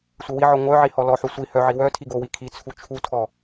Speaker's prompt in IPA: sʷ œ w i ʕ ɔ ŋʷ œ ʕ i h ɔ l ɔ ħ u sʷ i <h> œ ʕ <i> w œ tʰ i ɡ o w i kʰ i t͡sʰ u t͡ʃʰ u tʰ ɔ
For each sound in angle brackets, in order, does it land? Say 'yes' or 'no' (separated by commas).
yes, yes